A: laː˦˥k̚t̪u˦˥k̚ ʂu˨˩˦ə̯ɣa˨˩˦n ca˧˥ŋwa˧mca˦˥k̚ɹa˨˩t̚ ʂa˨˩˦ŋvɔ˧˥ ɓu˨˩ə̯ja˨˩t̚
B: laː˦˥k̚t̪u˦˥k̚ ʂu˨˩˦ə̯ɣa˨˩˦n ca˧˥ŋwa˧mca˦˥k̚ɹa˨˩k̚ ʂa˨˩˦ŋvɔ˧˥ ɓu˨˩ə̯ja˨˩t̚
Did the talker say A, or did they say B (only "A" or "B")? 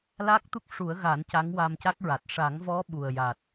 A